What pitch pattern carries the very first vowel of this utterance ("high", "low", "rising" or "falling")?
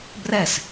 falling